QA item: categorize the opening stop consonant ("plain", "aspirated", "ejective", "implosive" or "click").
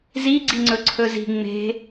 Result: click